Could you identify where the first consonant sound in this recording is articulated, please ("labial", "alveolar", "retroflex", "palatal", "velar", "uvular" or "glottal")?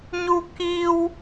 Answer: palatal